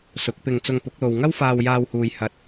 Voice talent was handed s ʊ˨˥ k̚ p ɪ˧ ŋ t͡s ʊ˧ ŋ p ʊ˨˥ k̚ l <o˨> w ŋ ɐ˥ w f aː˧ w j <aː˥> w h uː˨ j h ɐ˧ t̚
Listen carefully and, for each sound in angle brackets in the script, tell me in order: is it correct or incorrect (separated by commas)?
correct, incorrect